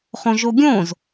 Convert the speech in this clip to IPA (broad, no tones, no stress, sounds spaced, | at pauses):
χ õ ʒ o ɡʲ õ z